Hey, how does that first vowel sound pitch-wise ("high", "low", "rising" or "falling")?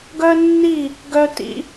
high